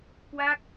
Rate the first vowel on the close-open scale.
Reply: open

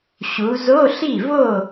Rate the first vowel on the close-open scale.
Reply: close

